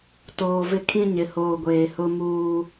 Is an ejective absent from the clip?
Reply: yes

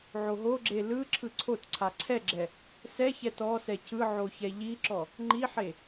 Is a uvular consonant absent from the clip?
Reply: yes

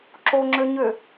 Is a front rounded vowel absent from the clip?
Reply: no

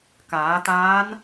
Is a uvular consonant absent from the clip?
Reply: yes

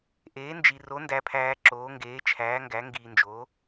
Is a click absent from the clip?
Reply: no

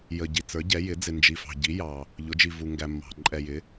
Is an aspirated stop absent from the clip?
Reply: yes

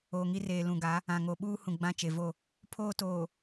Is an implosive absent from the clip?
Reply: no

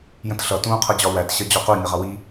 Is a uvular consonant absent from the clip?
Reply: no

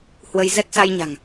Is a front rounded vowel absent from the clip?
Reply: yes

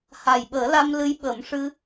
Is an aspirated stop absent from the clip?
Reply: yes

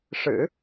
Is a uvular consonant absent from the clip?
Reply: yes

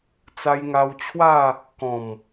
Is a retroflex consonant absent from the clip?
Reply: yes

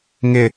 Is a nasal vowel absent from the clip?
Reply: yes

